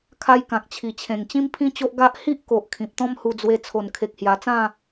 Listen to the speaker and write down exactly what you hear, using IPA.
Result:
kʰ a˦ j k ã˨ k̚ t͡ɕʰ i˨˩ t͡ɕʰ ẽ˨˩ ŋ t͡ɕ ĩ˦ m pʰ ĩ˦ t͡ɕ o˦ ʔ ɡ a˦ ʔ h i˦ ʔ k o˨ ʔ kʰ ĩ˨ p̚ t̪ ɔ̃˦ m h u˧ d͡z w e˧ t͡sʰ o˨˩ n kʰ e˨ k̚ h j a˨˩ t͡s ã˥˧

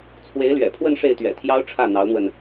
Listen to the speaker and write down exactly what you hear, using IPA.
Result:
t͡sʰ w e˧˥ ɪ̯ l ɥ ɛ̰˨˩ pʰ w ə˥˧ n ʂ e˥˩ ɪ̯ t̪ ɥ ɛ̰˨˩ t̪ʰ j ɑ˥ ʊ̯ ʈ͡ʂʰ ä˥˩ n̪ ɑ˧˥ ʊ̯ n̪ w ə˧ n

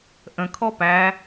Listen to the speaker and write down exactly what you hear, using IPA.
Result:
ʔ ə̃ kʰ ɔ p æ

